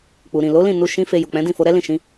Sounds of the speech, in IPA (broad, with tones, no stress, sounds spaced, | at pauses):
k͡p u˨ ɾ ĩ˨ l o˨˦ l ĩ˦˨ n u˧ ʃ ĩ˦ f e˧ j u˨ k͡p ɛ̃˨˦ d ĩ˦˨ f o˧ ɾ ɛ˦ l ĩ˦˨ ʃ ĩ˨˦